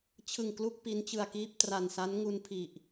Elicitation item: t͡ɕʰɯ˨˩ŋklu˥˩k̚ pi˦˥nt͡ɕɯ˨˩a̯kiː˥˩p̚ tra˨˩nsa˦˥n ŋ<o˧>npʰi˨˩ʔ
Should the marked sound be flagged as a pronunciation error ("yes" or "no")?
yes